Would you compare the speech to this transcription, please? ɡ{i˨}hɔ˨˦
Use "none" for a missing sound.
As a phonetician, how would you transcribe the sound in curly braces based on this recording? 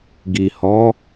i˨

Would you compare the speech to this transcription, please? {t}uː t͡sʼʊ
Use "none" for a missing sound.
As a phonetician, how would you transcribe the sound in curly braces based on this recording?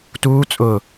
t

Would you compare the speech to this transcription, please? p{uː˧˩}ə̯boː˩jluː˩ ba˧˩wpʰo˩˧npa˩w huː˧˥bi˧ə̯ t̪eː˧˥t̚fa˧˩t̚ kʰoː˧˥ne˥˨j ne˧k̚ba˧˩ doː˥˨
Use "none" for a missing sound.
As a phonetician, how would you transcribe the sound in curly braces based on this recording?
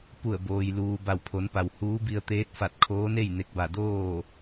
u˧˩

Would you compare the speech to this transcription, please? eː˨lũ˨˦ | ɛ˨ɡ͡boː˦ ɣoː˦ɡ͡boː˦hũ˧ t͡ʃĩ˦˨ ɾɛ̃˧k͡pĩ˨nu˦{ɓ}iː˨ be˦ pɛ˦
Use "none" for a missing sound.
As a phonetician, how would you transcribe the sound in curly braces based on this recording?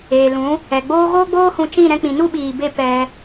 ɓ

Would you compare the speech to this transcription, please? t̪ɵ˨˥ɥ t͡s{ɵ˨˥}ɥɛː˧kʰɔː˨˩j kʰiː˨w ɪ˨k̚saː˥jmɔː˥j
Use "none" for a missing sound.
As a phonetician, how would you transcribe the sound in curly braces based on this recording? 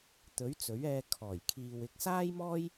ɵ˨˥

